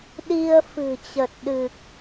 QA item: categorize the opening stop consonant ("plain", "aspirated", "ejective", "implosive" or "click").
implosive